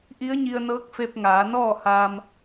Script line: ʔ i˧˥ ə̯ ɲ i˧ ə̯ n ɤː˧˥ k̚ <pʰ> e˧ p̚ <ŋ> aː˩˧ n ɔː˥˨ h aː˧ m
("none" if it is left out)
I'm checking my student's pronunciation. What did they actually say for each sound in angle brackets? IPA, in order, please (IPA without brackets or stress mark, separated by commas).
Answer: f, ŋ